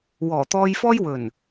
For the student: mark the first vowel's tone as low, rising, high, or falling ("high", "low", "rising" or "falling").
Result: low